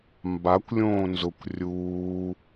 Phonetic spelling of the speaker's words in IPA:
mbakʷlʲõː nzʊkʷ rʲuː

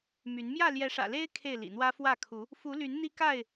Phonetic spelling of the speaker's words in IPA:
my˨˦n mjä˥˨ljɛ˨˦ʂä̰˨˩le˦ɪ̯ kʰe˥˨ɪ̯ lḭ˨˩n̪wä˦ fwä˥˨ kʰu˨˦ | fu˨˦ly˨˦n n̪i˦ka˥˨ɪ̯

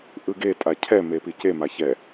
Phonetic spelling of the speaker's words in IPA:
ʔɯɡe tʼacʰɛ mepice maçɛ

